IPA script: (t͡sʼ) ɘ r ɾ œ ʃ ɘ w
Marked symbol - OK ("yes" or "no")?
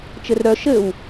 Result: no